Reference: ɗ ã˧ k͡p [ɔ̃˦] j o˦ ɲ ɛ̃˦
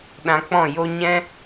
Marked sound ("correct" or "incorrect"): incorrect